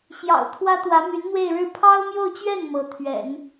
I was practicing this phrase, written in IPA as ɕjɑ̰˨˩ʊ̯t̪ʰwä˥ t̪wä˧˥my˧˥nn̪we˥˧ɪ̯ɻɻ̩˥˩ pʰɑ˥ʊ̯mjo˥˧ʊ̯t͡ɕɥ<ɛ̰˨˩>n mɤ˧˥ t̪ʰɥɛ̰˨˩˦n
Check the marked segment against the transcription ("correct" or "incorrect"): incorrect